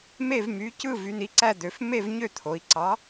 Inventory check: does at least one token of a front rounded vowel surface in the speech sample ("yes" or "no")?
yes